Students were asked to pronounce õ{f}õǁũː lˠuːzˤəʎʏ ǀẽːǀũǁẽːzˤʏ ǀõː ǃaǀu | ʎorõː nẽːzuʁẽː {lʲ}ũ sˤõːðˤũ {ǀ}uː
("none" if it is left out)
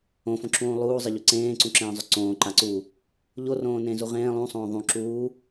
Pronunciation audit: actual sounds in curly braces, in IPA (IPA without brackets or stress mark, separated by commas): f, lˠ, ǁ